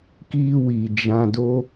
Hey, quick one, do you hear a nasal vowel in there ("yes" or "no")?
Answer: yes